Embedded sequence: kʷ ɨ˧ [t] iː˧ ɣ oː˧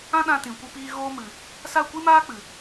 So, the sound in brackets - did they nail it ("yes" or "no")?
no